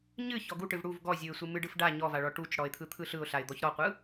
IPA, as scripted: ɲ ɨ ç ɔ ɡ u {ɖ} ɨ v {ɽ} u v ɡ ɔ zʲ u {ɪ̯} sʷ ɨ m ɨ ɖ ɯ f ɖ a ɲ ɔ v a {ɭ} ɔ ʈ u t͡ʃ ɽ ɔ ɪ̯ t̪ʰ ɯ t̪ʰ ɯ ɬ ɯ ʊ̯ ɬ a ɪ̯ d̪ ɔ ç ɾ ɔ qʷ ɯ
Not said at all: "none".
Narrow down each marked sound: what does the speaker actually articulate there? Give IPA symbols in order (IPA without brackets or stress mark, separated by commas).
ʈ, ɽ, ɪ̯, ɭ